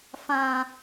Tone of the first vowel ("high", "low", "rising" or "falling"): low